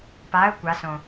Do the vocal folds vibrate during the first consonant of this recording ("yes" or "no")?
no